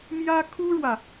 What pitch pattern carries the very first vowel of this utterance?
high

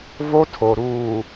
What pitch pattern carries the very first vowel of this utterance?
high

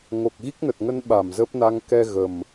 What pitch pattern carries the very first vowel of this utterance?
low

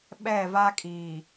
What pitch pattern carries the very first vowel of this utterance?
falling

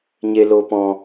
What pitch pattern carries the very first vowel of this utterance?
low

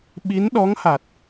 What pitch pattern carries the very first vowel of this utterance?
rising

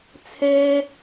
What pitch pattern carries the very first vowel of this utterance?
high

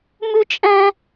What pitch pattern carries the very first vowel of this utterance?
high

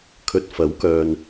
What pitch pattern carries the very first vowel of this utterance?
low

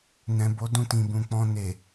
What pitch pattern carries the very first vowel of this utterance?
low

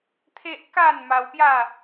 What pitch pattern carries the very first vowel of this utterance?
high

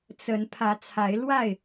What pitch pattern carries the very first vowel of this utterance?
rising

